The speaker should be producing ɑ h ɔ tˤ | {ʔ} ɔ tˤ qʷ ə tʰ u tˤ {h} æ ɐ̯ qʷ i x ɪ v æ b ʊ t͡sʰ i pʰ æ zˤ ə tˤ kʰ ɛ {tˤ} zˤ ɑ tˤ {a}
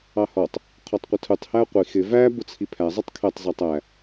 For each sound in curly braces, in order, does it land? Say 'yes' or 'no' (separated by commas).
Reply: no, yes, yes, no